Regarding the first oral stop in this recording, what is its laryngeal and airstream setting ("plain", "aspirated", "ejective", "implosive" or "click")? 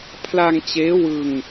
aspirated